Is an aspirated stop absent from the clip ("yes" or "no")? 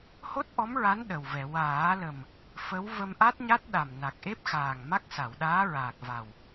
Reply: yes